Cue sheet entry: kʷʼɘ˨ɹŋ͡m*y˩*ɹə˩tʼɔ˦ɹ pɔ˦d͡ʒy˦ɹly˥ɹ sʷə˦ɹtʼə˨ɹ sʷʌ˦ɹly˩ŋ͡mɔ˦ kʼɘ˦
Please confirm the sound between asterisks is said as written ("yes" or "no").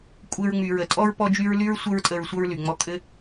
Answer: yes